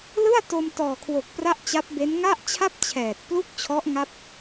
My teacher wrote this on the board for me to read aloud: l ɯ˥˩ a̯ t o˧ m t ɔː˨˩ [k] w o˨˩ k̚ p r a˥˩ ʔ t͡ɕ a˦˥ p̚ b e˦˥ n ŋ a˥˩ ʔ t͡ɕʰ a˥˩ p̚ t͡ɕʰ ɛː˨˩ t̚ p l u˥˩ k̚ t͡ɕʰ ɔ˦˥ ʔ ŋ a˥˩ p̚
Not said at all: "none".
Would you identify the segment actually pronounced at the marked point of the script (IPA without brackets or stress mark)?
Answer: kʰ